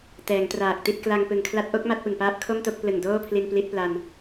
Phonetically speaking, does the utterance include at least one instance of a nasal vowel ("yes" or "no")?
no